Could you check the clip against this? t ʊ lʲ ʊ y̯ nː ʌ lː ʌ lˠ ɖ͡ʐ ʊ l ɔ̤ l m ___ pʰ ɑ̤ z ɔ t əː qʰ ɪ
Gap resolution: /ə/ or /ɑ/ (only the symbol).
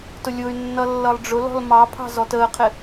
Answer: ɑ